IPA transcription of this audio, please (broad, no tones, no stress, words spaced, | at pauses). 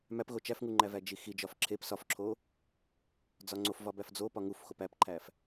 mæpɣo t͡ʃæfŋuŋ͡ǃævæ d͡ʒixi d͡ʒɒfǁʰep sɒfǁʰo | d͡zɒŋ͡ǀof vɒbæfd͡zo pɒŋuf xopæpǃʰæf